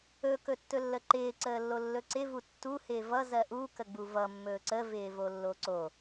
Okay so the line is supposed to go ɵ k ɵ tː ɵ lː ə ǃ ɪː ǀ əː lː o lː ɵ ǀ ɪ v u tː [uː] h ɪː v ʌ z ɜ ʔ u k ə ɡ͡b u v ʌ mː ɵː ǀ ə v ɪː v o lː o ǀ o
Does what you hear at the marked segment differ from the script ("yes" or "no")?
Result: yes